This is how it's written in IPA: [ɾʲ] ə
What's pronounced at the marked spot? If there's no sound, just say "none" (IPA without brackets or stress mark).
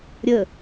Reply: ɾʲ